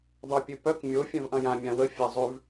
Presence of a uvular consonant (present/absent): absent